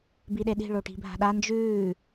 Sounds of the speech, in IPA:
biɗeɗi̤ ɭoʈi̤bʱa̤ɗa nd͡ʒʉː

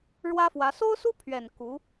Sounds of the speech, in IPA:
ɻwä˥fwä˧˥ so˥ʊ̯su˥pʰɥɛ˨˩n ku˧˥

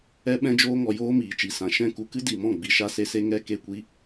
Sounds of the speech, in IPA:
ɛ˦ ɓɛ̃˦d͡ʒoː˦ŋɔ˧ joː˦miː˨t͡ʃi˨sã˨ ʃɛ̃˦˨ku˧kɨ˦ di˨mɔ̃˦˨ɡ͡bi˨ ʃa˦se˦se˦ ŋɛ˦ke˦˨kʷi˦

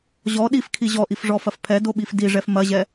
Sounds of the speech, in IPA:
ʑɔ ɗifkʰi ʑɔʔifʐɔfɐf pʰɛdoɓif diʐɛf mɐʑɛ

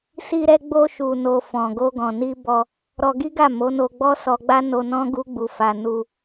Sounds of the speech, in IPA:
si˧ɾɛ˧ ɡ͡bo˧ʃu˨no˨ fɔ̃˨ɡo˧ ɡɔ̃˨ni˧bɔ˧ | ɾɔ˧ɡi˦ɡa˦˨ mo˨˦no˧ɡ͡bɔ˦ sɔ˧ɡ͡ba˦ no˧nɔ̃˦ ɡu˦ɡ͡bu˧fa˧ nu˧

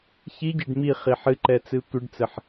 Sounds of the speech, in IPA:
çiɟeɖ mi χiħɨǃɛ t͡sɨtʷɨɖt͡sɘħ

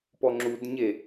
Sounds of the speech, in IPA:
pɔŋ͡ǁudɲe

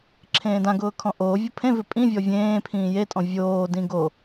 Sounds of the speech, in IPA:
ǁʰẽːdãɡʊː kʰɔ̃ʔoːvʲʊ pʰẽvɪ pʼĩ vʲɔvʲẽːpʰĩː jetʼɔ̃ vʲoːdĩ ɡo

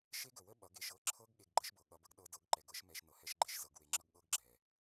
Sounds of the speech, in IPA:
ʃe˦ɡə˨wə˦ ɓʌ˨˦ɡ e˨ʃɤ˧ǁʰɤ˧ɡ ɠe˧ɡɡ͡ǃə˦ʃbɤ˨ ɠʌ˧bə˦ɡ ɗɤ˧dɤ˨˦ɡǃɛ˨ɡ ɤ˦ʃmɛ˧ʃ nɤ˨hɛ˦ʃɡ͡ǃe˦ʃzɤ˨˦ɡ we˧ŋ͡ǁʌ˦ɡ ɠɤ˦ɡɡ͡ǁɛ˨

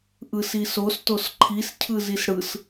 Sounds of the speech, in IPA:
ʔɯsisos tosǃʰis cʰɯzisɽɯs

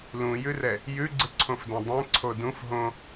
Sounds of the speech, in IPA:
lũjʉrɛ | jʉɡ͡ǀɯǀʰõfdɛ̃ dˤɛ̃ǀʰo dũf ɦõ

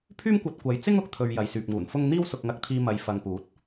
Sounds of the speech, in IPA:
pʰyː˥mkʷɐ˧t̚kʷɐ˨˧j t͡sɪ˥ŋʊ˨k̚t̪ʰɵ˨ɥ jɐ˨jsyː˨p̚ŋuː˨˩nfʊ˥ŋ n̪iː˥wsʊ˧k̚ŋɐ˧k̚t̪ʰiː˧ mɐ˨jfɐ˨ŋpuː˨˥t̚

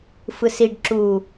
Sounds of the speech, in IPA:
fɯsiɖ ǁu

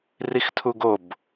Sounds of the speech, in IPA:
rixtʰuɡob

